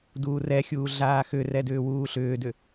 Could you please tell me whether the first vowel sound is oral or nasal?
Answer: oral